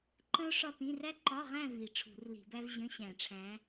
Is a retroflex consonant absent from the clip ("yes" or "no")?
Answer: no